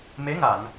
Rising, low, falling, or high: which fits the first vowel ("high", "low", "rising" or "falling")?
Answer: rising